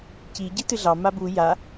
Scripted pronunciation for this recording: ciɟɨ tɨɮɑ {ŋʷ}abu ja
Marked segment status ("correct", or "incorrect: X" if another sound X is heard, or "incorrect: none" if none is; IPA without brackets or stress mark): incorrect: m